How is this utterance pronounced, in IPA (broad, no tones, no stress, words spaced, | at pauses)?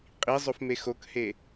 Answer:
qʼizˤof mexokhe